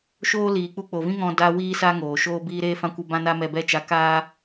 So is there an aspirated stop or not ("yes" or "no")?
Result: no